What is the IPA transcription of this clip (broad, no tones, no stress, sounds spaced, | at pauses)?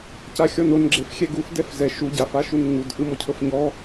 c a xʲ ɔ n o n ɡ͡ǁ e f xʲ ɛ ɡ u f d ɛ f z ɛ ʃ u ɟ a f a ʃ u n ŋ u d ʔ ɯ m ɔ cʰ ɤ f ɲ ɔ